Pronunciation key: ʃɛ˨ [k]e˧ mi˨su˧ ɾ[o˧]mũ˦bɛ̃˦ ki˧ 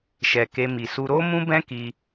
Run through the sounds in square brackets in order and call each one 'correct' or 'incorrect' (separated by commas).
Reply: correct, incorrect